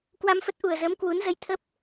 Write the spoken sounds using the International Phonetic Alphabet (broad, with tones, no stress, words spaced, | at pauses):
kwa˧mfə˦˥t̚ ʔu˨˩ə̯zəː˨˦m kwu˨˦nzə˧j t̪ʰə˦˥p̚